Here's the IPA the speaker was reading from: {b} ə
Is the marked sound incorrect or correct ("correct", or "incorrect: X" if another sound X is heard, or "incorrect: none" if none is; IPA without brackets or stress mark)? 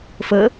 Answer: incorrect: f